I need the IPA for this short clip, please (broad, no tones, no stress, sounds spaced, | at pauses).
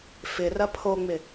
f ɪ r ɐ pʰ o ŋ͡m ɪ